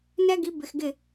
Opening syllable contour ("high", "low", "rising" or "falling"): high